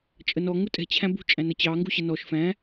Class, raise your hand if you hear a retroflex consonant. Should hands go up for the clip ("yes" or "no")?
no